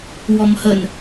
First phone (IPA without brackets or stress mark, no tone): w